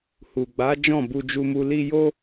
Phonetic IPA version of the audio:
h u˨ ɡ͡b a˨˦ d͡ʒ ɔ̃˦˨ b u˧ d͡ʒ u˧ m u˧ l i˧ j o˦

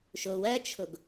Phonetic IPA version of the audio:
ʃ o w ɐ t͡ʃʰ o ɡ

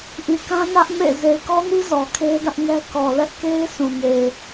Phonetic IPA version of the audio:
ʔ i˨ k ã˦ n ä˦ ʔ m ḛ˦˨ z e˨ ɪ̯ k ɔ˦ n i˦ z ɔ˨ kʰ e˦ d ä˦ ʔ ŋ ɛ˦ k ɔ˨ l ɛ˦ ʔ k e˦ ɪ̯ s ũ˨ ŋ e˨

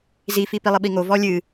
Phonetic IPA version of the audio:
z i f i p i lˠ ɨ ɓ i ŋ o v ɔ lʲ ɨ

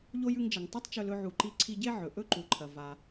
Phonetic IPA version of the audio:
ʎ o˥ j ʉ˧ ŋ d͡ʒ ɐ˩ ŋ tˤ u˥ tˤ t͡ʃ ɵ˧ l ɵ˧ ʕ u˩ ǃ i˧ ǀʰ i˧ ɟ e˥ ʕ ɵ˩ ʔ ɵ˥ ǃ u˩ ǃʰ ɐ˩ v a˩

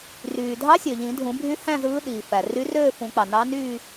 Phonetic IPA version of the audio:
r yː˩ dʱ ɑ˧˥ sʲ ø˩ ʎ ĩ˨˩˦ dʱ ũ˨˩˦ bʱ y˧˥ h æ̃˥˧ z ɯː˧˥ ɗ iː˩ f æ˩ r y˧˥ r øː˥˧ f ũ˨˩˦ k͡p ɑ˩ n ɑ˧˥ n y˥˧

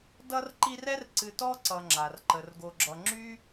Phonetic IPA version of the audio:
d ʌ˦ r ǃ i˦ r ɛ˥ r ǀ ɨ˨ t ɔ˦ ǀ ʌ˨ ŋ͡ǁ a˩ r ǃ ə˩ r ɡ o˨ ɡ͡ǁ ʌ˨ ŋ͡ǁ y˥

